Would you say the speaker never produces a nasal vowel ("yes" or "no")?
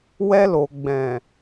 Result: no